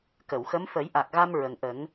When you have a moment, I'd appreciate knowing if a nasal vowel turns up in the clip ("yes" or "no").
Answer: no